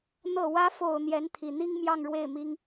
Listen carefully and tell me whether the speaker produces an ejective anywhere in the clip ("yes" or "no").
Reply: no